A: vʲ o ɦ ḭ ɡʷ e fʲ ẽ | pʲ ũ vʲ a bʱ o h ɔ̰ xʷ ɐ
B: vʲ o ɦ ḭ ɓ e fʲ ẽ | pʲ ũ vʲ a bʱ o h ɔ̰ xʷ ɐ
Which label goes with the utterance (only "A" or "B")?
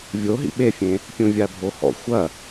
B